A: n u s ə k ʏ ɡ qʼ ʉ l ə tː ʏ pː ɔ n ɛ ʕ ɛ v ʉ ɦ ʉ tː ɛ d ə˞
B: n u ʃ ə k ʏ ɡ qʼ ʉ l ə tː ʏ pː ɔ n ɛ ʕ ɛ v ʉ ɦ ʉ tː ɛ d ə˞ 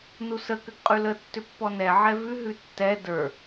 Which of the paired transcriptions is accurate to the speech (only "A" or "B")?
A